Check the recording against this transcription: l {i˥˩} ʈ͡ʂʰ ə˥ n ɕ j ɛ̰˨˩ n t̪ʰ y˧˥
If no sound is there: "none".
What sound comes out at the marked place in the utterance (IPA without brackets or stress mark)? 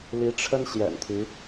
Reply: i˧˥